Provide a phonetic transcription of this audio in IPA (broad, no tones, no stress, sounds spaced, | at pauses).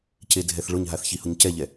c e dʱ ɛ θ ɭ ʊ ɲ ɦ a θ ç i h ʊ ɲ c ɛ ʎ ɛ